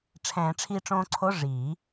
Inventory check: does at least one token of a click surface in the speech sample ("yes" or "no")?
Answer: yes